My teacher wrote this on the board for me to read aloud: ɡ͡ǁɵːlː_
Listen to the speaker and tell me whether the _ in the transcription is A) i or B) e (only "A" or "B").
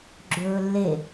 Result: B